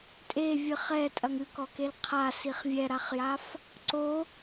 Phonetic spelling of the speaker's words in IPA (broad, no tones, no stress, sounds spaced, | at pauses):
tʼ e vʲ ɨ χ ɛ tʼ ɐ ŋ ɨ k ɔ k e l qʰ a s i χ vʲ ɛ ɾ a χ j a f | ǀ o